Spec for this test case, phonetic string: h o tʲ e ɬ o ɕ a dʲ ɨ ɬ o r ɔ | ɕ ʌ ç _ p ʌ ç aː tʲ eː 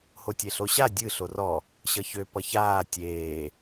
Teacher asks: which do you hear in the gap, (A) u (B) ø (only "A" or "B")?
B